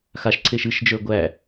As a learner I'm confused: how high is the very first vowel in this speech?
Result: low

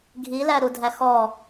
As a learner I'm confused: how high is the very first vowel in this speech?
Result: high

